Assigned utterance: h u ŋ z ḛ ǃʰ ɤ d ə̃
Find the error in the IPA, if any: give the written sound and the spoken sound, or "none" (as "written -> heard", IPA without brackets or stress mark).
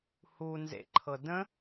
ŋ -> n